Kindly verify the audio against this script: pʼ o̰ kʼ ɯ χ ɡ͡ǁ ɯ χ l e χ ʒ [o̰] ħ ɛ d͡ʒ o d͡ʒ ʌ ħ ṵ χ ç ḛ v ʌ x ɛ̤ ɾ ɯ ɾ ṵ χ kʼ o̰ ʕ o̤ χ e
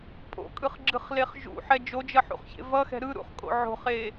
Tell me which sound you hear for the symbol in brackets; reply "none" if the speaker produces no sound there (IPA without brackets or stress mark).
ṵ